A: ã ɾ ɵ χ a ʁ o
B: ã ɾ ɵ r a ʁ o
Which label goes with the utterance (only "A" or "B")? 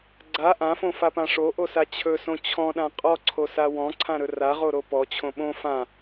B